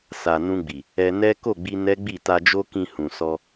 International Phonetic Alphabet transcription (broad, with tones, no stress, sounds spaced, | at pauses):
s a˨ n ũ˧ ɡ͡b i˨ | ɛ˧ n ɛ˦ k o˦˨ ɡ͡b i˧ n ɛ˦ ɡ͡b i˦˨ t a˨ d͡ʒ o˧ k ĩ˨ h ũ˨ s ɔ˧